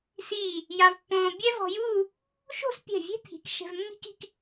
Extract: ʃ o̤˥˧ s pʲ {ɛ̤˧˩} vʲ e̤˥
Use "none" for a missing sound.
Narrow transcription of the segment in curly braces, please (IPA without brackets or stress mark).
ɛ̤˧˩